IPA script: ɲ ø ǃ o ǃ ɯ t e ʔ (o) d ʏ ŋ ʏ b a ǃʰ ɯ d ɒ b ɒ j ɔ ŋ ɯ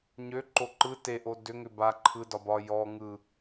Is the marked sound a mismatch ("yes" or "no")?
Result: no